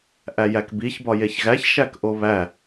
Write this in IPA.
ʔ æ j æ k b i ç b ɒ j e ç ɣ æ ç ʃ æ k ʔ o β æ

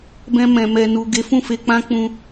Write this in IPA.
b ɛ̃˧ m ɛ̃˨ m ɛ˨ n u˨ ɡ e˨˦ f ũ˦˨ f e˧ k͡p ã˦ k͡p ũ˧

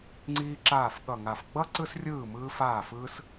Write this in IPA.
ŋ͡ǀ iː˥ ǁ aː˥˧ f ɠ ʌ˥˧ ŋ a˥˧ f ɡ͡b ʌ˥ ǀ ɯ˥ s rʲ ɯː˥˧ m ɯː˥ f aː˥˧ f ɯː˥ s

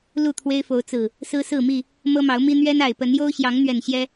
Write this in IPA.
l u˥˨ t̪ʰ w e˦ ɪ̯ f o˨˦ ʊ̯ t͡s ɹ̩˨˩ | s ɹ̩˦ s ɹ̩˥˨ m i˥˨ | m ɤ˦ m ɑ˨˦ ʊ̯ m i˦ n̪ ɥ ɛ˦ n a˨˩ ɪ̯ p ə˨˦ n j o˦ ʊ̯ ɕ j ɑ˨˦ ŋ n̪ ɥ ɛ˨˩ n ɕ j ɛ˦

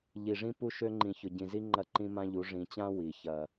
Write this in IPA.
ʎ i˨ ʐ ĩ˦ p u˦ ʃ ø˦ ŋ͡ǃ ĩ˨ ç ʊ˨ ɟ ĩ˨ z i˦ ŋ͡ǃ ɐ˦ ǃ ĩ˦ m ã˦ ʎ u˨˦ ʐ ĩ˨ t͡ɕ ã˦ w i˨ ç ɐ˦

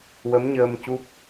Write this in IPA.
w ə˧˥ m ɲ əː˧ m c u˦˥ p̚

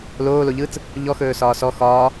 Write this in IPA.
l oː l o ʎ ɯː t͡s | ʎ ɔ x ɵː s ɒː s ɔ x ɒː

